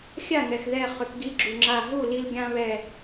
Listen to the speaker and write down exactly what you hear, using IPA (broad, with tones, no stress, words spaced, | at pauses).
xʲa˥˩ŋɛ˩xðɛ˧˩ χʏ˩˧kɡi˨˥ɡ͡ǁu˩ ŋ͡ǁa˧˩ ɦu˥˩li˧l ɡʲã˧βɛ˧˩